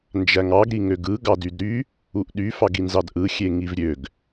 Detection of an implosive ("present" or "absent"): present